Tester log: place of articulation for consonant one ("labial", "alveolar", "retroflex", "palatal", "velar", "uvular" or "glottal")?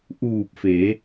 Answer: glottal